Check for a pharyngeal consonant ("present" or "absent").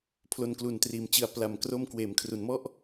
absent